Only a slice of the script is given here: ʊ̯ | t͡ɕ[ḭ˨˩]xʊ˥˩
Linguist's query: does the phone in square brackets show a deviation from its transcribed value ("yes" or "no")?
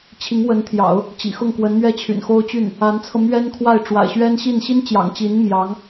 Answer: no